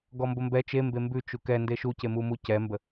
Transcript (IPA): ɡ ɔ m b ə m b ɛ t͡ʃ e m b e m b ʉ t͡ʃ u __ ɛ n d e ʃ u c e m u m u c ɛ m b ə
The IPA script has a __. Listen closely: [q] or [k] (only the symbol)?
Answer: k